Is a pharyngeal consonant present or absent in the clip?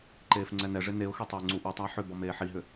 present